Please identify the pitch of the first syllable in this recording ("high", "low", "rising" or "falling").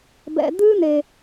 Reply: low